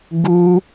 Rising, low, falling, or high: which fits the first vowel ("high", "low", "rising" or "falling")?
high